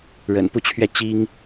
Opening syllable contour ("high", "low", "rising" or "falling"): low